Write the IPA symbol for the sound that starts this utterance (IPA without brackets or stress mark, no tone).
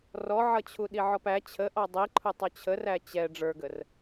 r